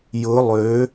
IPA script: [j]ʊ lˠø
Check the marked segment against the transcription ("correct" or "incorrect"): correct